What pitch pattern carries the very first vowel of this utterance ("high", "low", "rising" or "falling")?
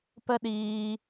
high